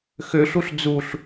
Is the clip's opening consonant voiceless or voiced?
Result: voiceless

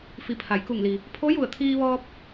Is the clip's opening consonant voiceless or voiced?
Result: voiceless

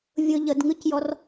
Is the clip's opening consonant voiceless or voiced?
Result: voiced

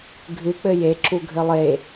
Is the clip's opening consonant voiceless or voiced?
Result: voiced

